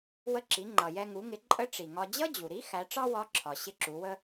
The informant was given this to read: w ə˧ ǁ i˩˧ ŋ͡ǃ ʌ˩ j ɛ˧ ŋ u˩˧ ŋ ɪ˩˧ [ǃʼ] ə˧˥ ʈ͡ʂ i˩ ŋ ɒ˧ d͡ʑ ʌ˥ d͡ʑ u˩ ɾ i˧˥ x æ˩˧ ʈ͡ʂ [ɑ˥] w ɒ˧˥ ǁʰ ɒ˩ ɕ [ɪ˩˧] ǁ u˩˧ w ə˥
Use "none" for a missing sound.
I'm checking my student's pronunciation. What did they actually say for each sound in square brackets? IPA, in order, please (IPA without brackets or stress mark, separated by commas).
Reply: ǃʼ, ɑ˥, ɪ˧˥